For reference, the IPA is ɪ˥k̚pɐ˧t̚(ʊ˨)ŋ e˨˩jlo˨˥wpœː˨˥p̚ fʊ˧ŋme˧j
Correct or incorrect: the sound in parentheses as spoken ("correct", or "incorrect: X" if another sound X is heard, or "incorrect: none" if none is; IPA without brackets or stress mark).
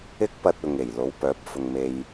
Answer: correct